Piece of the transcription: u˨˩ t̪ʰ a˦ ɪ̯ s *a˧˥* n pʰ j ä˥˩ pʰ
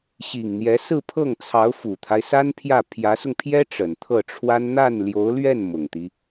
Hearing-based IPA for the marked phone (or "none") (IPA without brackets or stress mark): a˥